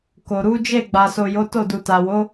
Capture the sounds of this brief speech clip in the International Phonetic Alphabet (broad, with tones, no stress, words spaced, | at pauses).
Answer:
ko˨ɾu˨˦ d͡ʒe˦˨ɡ͡ba˨so˨ jo˨˦to˦˨ du˨ta˨wo˨˦